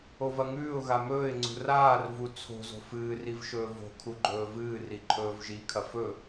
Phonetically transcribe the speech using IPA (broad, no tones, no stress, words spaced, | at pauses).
ovɐŋʉːʊ̯ɣa mɵːɪ̯ŋ͡ǀṳ raːrvu t͡sʰo̤zo̤ fɨːr ivʃɵːvo̤kʰu ɡ͡ǃɵːvɨːri ǃʰɵːvʒikʰɐ fɵ